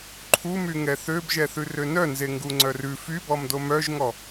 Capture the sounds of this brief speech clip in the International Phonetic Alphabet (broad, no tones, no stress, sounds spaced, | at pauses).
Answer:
ǃʰ u m y ŋ ɛ θ ø b ʒ ɛ θ ʉ r ø n œ n z e ŋ ɡ u ŋ͡ǀ œ r ʉ f y b ɔ m d o m œ ʒ ŋ ɔ